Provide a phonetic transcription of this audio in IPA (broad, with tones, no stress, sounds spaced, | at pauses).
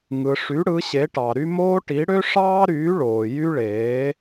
ŋ ɯ˨ ʂ y˨˥ ɽ ɯ˨˥ ɕ e˨˥ ʈ ɑ˨ ɾ y˥ m oː˥ ʈ i˨˥ ɽ ø˥ ʂ ɑː˥ ɾ yː˨˥ ɭ oː˨ j y˥ ɭ eː˨˥